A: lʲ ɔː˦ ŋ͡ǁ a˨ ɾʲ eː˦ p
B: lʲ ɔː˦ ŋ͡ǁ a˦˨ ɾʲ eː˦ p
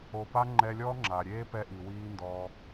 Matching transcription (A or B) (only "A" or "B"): A